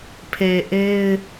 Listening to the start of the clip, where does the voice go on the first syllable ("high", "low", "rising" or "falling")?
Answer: low